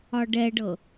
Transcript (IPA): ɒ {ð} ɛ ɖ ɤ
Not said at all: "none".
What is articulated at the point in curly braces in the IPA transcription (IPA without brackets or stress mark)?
ɖ